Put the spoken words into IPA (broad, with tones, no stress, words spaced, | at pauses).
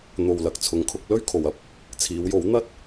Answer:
n̪o˨w lɐ˨k̚t͡sʰʊ˨˥ŋkʰʊ˨˥k̚ lɵ˥ɥ kʰo˨wɐ˥p̚ | t͡sʰiː˨˧wjo˨˥w n̪ɐ˥t̚